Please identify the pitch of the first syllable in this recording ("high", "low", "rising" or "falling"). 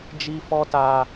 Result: high